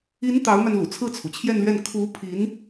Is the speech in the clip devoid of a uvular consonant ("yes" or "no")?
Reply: yes